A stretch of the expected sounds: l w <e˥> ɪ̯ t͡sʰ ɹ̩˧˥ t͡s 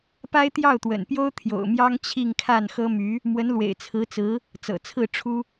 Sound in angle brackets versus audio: incorrect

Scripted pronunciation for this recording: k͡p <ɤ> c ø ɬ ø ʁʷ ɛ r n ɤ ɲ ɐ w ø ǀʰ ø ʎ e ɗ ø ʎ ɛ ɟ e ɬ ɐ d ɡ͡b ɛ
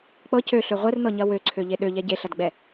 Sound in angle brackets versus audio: correct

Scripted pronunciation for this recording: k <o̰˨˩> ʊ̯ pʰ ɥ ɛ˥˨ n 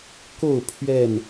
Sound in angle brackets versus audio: incorrect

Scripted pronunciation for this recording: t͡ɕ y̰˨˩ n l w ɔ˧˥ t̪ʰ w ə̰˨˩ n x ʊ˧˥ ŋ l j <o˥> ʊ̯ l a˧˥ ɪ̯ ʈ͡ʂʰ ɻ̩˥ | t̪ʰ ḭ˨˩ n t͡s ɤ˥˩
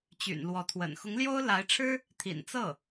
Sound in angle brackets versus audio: correct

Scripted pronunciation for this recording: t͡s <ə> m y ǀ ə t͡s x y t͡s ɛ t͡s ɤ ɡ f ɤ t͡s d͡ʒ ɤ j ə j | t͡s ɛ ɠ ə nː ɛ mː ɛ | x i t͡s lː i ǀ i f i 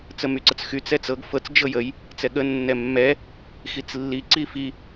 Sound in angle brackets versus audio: correct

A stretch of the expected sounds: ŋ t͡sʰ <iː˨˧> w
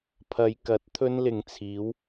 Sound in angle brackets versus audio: correct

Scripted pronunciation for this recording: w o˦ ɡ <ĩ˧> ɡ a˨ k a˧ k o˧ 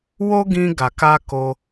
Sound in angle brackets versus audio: correct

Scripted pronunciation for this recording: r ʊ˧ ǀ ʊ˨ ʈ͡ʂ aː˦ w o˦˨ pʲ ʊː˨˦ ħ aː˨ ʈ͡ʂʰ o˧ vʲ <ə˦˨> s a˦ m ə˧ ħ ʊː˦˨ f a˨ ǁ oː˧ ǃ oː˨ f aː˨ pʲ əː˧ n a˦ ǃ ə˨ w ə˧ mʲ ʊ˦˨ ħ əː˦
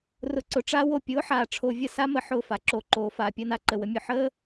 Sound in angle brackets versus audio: correct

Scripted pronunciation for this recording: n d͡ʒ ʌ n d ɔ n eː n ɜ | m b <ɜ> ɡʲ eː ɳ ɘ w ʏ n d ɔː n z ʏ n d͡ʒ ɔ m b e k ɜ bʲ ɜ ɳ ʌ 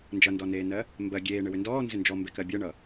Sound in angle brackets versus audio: correct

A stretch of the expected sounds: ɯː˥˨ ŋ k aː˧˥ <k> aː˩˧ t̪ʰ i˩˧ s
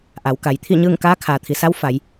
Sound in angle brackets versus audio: incorrect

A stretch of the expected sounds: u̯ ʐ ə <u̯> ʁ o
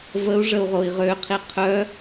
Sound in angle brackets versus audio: correct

